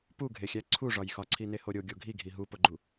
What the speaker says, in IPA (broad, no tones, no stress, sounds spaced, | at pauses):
p u ɡʱ e xʲ æ ǀʰ u ʐ ɒ j x ɒ ǀʰ i n e h o ɾʲ o ɡʲ o ɡʱ i ɡʱ i ɦ u p o ɡ͡ǃ u